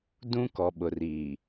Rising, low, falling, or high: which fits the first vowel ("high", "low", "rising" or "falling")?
high